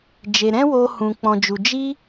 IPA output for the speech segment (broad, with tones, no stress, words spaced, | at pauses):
d͡ʒe˨ɾɛ̃˦ woː˧hũ˨ k͡pɔ̃˨d͡ʒu˨ d͡ʒi˦